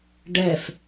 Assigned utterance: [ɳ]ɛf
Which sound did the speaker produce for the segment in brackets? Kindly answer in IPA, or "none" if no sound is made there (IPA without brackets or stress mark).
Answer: ɖ